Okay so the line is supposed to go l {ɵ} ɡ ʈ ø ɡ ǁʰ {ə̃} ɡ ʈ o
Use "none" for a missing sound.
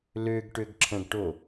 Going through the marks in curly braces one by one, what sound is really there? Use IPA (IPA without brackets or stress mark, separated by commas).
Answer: ø, ə̃